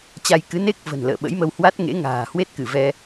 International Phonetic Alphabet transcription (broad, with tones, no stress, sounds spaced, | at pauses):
t͡ɕ a˧ j k ɨ˨˦ n e˦˥ k̚ v ə̤˨˩ n l ə̰ː˧˨ ɓ ə̰˧˥ j m ə˧ w h w a˦˥ t̚ ŋ ḛ˧˥ ŋ a̤ː˨˩ h w e˦˥ t̚ k ɨ˧˩ v ɛ˧